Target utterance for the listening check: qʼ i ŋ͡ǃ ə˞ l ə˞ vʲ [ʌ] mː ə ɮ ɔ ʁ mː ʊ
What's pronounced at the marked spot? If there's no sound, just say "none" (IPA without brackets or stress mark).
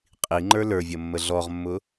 ʌ